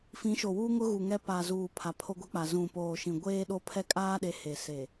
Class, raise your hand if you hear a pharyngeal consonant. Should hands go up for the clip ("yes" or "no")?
no